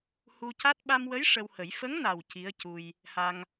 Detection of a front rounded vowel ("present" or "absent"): absent